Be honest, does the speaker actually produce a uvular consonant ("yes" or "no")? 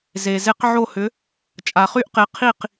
yes